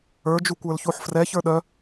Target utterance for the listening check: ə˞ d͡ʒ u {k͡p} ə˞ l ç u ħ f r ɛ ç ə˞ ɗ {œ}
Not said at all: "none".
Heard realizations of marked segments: kʷ, œ

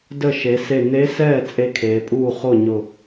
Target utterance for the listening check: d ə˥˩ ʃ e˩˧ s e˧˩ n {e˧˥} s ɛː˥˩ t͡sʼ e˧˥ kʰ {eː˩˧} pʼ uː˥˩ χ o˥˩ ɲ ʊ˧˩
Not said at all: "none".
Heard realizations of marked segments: e˧˥, eː˩˧

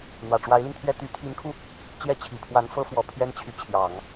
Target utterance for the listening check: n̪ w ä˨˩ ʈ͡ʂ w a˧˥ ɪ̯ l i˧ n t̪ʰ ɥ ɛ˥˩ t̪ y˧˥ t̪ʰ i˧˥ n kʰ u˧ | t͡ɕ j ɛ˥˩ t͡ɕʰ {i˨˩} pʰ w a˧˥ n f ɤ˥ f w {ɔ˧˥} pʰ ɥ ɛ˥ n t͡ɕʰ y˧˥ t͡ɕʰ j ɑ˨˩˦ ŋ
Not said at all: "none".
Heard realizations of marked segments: i˨˩, ɔ˨˩

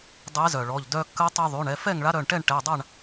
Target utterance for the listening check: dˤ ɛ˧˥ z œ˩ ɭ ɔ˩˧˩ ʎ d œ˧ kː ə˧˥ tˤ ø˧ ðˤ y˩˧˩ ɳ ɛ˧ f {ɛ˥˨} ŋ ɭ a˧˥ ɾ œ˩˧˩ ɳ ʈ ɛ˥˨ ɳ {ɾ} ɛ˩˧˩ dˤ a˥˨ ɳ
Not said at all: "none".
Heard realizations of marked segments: ɛ˥˨, ʈ

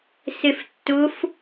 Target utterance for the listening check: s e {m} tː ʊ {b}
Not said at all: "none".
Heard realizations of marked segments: f, f

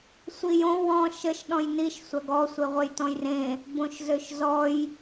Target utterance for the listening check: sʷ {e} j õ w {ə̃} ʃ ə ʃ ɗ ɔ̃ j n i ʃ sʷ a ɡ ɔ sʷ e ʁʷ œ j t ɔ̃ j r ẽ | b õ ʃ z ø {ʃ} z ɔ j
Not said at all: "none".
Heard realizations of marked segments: i, ɔ̃, ʃ

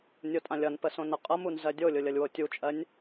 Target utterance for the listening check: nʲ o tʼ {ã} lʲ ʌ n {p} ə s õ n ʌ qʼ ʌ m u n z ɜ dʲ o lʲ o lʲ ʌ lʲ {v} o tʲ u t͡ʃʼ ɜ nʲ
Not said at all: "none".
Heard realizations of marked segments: ã, p, w

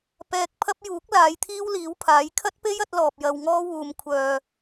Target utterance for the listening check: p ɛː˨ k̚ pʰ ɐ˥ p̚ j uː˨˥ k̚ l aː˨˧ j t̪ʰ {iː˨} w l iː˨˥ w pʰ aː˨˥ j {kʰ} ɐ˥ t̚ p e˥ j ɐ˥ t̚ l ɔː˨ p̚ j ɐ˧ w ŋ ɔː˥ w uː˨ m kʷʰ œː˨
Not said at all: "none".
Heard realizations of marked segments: iː˥, kʰ

